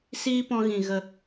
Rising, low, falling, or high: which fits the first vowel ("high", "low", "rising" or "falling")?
high